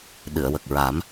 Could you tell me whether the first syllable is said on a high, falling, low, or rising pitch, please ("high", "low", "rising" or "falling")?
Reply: low